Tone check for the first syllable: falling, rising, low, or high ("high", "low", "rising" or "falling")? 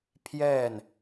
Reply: falling